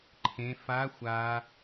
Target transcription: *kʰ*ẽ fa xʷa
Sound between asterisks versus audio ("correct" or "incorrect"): incorrect